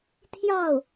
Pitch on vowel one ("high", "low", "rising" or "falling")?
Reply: falling